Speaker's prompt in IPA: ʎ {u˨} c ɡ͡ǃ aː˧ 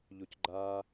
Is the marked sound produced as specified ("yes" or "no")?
yes